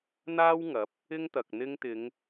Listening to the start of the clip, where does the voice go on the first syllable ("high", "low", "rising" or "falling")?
high